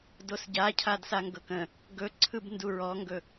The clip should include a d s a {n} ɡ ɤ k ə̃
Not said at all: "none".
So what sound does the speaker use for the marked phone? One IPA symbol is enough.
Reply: ŋ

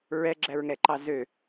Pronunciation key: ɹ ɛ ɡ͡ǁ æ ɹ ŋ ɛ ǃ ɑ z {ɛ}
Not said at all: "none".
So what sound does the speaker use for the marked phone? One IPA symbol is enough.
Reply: ø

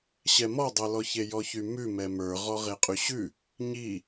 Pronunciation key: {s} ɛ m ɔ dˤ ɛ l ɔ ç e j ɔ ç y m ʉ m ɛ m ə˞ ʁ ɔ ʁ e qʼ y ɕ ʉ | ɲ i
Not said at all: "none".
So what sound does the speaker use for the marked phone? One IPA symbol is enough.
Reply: ɕ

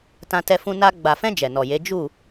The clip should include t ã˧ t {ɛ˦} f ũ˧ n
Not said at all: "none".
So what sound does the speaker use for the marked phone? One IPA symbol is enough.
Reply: ɛ˧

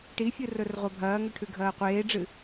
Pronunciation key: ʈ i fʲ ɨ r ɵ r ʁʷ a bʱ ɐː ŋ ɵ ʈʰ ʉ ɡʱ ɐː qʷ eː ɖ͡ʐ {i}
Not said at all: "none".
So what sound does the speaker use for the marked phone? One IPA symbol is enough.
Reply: ɨ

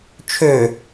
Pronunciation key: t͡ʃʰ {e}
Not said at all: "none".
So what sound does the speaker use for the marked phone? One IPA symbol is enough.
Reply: ø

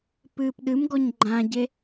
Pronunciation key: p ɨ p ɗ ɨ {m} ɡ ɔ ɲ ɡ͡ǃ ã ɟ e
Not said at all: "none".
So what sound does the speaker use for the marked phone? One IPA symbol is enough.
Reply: m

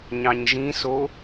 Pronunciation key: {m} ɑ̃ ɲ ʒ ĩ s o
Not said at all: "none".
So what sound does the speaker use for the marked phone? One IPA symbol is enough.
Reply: ɲ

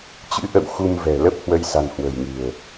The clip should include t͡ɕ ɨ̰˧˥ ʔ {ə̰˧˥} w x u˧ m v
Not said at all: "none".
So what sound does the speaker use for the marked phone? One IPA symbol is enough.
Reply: ə̰˧˨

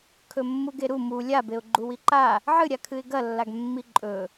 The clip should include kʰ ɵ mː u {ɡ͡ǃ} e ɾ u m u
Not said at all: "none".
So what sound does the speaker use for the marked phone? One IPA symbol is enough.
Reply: ɡ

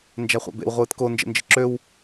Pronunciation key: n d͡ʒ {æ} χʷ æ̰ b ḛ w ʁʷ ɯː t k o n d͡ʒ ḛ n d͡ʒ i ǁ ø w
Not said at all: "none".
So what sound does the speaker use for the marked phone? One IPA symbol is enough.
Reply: æ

